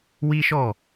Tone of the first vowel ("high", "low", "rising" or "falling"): high